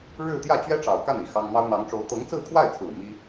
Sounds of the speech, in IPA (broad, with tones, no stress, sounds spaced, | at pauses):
ɻ ɻ̩˥˧ t̪ j ä˥˩ t͡ɕ ɥ ɛ˥ ʈ͡ʂ ɑ˨˩ ʊ̯ k a˥˩ n i˨˩ x ɑ˥ ŋ m ɑ˥ ʊ̯ n̪ ɑ˧˥ ŋ ʈ͡ʂ o˧˥ ʊ̯ t̪ ɤ˧˥ ŋ t͡s ɹ̩˥˧ kʰ w a˥˩ ɪ̯ t͡sʰ ɹ̩˨˩ m i˥